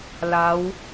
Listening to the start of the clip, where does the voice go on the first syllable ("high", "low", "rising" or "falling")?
rising